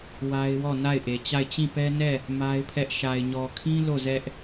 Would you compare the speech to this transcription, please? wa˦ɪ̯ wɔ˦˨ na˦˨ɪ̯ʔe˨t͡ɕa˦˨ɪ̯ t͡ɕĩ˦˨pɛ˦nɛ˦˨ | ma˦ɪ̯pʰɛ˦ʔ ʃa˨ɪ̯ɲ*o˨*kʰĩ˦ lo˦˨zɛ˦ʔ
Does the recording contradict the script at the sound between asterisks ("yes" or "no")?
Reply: yes